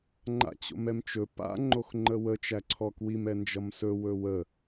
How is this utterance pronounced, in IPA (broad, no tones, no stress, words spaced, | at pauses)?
ŋ͡ǃa̰t͡ɕo̰mɛmt͡ʃɵ pa̰ ŋ͡ǃoxŋ͡ǃəwə t͡ʃæǀʰɔkwim ɛnd͡ʒʌmsɵ wɵwə